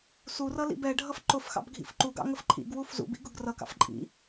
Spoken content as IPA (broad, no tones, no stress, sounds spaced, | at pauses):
s u r ʌ l ḭ b ɛ ɖʱ ʌ f ǃ ʊ f x ɑ̰ b ɡʱ ḭ f ǃ u ɡ ɑ̰ ŋ ə f ǃʰ ḭ ɡ w u f z ṵ b ḭ ɡ ʊ ɡ r ʌ k ɑ̰ f ǃʼ ḭ